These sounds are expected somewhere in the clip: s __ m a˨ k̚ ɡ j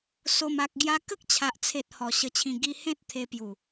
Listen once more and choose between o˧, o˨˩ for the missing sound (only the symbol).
o˨˩